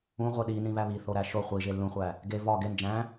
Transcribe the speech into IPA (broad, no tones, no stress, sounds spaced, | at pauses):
ũ ʁʷ e ɗ i n ĩ β æ β i θ o ɾ æ ʃ o χʷ i ʒ e lː ũ χʷ æ | ɡ e v ɒ ɡ e n d͡ʒ æ̃